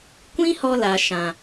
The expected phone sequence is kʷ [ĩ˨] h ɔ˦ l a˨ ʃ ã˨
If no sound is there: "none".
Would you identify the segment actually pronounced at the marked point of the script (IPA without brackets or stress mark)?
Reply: ĩ˦